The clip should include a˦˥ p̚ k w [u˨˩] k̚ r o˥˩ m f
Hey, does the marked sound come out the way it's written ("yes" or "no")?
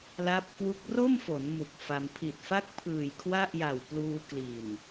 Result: no